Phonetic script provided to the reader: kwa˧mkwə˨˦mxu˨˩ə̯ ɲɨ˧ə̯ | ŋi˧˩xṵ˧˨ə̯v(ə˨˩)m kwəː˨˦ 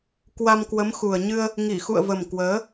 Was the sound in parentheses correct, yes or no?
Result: yes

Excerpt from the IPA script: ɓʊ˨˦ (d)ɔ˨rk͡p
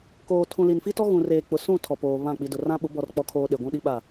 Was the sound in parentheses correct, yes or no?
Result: no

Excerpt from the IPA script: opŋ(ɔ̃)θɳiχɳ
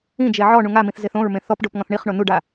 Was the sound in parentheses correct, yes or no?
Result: yes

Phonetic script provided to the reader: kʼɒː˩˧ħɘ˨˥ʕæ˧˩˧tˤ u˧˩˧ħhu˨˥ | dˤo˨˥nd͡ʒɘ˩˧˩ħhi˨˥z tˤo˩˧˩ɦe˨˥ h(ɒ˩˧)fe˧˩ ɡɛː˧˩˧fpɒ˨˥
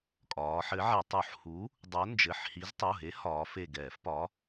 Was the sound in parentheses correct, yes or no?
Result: no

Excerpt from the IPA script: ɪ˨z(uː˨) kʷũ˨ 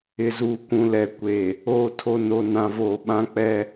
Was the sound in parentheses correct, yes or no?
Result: yes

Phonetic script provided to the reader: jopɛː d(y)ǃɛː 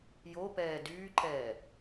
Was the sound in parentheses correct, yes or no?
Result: no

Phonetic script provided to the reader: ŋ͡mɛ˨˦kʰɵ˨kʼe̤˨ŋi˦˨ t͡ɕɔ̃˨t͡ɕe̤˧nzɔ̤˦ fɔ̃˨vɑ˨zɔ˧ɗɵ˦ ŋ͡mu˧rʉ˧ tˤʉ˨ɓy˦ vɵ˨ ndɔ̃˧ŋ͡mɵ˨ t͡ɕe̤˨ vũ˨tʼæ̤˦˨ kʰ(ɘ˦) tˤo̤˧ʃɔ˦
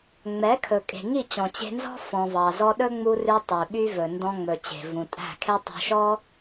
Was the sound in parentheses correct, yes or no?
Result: no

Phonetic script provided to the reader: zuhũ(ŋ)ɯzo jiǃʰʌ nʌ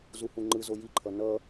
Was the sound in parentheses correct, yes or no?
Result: no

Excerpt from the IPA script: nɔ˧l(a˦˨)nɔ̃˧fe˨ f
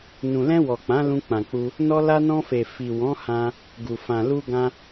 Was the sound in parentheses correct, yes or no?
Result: no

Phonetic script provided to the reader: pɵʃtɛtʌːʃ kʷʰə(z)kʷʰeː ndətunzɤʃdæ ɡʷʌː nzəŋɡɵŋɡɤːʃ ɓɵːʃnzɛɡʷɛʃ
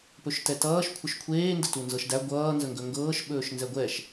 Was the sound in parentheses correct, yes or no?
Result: no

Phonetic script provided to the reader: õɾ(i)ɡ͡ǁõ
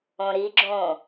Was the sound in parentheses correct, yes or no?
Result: yes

